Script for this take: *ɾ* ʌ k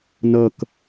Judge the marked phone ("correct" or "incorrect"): incorrect